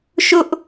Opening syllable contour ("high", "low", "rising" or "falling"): high